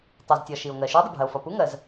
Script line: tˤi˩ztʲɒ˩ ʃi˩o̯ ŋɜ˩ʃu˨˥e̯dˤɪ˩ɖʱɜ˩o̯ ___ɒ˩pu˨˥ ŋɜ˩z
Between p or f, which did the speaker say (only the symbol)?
f